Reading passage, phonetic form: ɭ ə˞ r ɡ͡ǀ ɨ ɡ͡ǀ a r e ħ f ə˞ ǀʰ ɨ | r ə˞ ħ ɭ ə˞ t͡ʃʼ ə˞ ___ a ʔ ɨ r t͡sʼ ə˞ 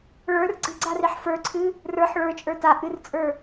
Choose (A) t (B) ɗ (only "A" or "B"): A